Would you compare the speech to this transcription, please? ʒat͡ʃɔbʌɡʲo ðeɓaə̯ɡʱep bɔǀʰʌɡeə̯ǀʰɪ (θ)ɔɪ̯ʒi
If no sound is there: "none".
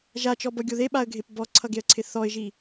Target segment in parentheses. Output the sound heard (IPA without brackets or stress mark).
θ